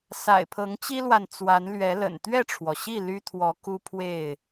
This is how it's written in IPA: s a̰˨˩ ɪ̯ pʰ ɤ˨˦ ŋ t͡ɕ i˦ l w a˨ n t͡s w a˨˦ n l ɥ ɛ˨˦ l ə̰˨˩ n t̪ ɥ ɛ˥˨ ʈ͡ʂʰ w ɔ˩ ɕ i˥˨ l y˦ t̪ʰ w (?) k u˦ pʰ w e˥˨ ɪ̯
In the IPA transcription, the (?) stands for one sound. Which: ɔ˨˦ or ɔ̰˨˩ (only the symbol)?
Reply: ɔ˨˦